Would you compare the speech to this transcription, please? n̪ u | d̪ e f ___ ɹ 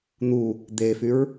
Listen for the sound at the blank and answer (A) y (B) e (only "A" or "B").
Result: A